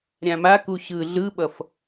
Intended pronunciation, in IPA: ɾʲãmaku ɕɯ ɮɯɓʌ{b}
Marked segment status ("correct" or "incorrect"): incorrect